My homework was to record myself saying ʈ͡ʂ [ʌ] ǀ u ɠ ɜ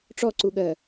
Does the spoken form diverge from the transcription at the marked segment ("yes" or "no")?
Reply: yes